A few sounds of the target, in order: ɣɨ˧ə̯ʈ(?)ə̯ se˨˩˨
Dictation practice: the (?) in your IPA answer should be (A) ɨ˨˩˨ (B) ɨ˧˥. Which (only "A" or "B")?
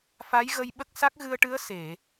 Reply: B